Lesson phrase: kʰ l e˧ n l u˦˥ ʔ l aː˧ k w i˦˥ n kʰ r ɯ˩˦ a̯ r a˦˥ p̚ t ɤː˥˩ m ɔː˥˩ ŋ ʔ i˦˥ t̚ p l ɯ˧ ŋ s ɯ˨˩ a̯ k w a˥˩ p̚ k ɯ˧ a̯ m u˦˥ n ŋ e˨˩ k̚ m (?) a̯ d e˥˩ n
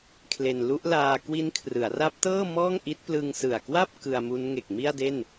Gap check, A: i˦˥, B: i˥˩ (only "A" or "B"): B